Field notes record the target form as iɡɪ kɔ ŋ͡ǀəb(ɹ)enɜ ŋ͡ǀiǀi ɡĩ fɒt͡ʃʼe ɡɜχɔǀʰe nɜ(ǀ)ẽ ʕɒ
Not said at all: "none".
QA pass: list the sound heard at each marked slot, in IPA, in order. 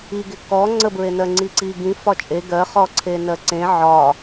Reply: ɹ, ǀ

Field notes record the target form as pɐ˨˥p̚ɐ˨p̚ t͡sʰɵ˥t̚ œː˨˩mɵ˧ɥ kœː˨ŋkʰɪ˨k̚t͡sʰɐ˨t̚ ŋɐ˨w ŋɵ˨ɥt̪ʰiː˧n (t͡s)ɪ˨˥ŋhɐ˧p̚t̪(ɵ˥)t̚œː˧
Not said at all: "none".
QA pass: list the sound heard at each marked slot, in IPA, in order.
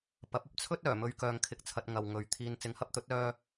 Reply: t͡s, ɵ˨˥

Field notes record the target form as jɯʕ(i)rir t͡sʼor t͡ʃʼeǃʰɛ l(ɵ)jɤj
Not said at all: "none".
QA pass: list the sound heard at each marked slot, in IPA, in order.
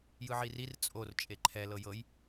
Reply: i, ɤ

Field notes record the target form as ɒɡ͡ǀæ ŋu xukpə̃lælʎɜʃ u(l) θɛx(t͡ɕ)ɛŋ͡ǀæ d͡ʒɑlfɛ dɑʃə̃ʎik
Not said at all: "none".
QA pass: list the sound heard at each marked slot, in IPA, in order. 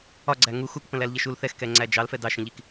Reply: l, k

